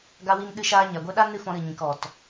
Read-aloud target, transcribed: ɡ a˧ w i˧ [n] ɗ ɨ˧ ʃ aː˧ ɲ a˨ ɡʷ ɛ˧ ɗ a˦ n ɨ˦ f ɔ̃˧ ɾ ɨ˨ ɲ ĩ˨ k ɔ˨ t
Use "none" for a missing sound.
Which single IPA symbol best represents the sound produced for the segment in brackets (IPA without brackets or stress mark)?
n